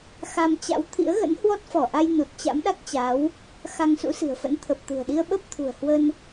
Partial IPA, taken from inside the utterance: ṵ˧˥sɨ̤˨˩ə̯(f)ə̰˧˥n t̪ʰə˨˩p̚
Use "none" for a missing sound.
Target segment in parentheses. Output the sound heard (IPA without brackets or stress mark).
f